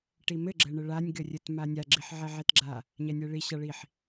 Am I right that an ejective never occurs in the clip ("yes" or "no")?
yes